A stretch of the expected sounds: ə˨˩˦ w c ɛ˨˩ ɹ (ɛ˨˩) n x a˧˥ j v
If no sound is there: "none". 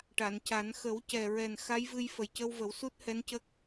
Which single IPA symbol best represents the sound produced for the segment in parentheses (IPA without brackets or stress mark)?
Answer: ɛ˨˩